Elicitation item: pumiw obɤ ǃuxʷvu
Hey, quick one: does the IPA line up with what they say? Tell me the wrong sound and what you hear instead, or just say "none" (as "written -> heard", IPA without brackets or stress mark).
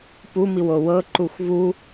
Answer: b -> w